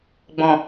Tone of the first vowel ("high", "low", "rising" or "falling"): low